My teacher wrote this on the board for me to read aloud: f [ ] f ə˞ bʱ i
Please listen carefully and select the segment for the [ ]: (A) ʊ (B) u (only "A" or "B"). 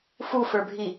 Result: B